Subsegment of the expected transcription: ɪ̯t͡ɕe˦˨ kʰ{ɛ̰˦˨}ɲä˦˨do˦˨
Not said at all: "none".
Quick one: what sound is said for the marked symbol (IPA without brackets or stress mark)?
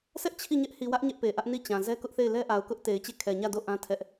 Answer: ɛ˨